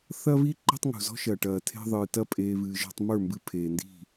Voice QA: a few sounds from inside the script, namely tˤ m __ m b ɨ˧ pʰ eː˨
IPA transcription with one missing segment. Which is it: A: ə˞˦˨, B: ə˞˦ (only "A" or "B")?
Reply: A